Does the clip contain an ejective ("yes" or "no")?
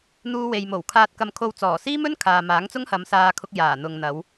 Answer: no